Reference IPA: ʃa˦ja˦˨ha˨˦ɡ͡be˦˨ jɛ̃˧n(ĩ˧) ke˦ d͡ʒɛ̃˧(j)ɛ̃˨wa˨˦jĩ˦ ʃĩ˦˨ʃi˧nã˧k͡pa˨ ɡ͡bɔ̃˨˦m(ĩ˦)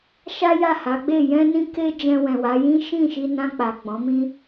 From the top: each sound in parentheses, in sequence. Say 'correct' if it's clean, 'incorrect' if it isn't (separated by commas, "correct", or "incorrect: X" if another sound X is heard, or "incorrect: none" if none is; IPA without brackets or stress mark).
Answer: correct, incorrect: w, correct